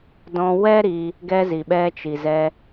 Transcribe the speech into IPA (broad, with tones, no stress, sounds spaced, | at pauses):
d ɔ̃˧ w ɛ˦ ɾ i˧ | ɡ ɛ˧ z i˨ ɓ ɛ˧ t͡ʃ i˨ z ɛ˧